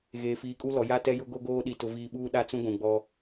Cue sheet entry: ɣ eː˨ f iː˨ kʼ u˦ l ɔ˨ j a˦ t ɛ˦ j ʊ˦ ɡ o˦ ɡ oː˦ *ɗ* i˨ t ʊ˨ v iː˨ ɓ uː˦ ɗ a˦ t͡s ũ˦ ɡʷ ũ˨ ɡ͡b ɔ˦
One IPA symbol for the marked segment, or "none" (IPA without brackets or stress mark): ɗ